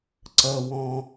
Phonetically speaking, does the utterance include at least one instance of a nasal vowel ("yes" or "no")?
yes